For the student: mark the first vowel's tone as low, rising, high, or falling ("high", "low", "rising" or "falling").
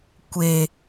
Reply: low